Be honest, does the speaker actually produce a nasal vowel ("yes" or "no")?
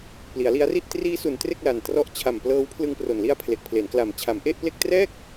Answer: no